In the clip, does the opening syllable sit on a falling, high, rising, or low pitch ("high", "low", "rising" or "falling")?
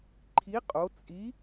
rising